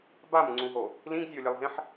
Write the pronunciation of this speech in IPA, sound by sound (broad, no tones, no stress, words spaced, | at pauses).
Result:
bamŋ͡ǀũɦo | lĩɡzʲɐo̯lʲɐlˠɦẽħ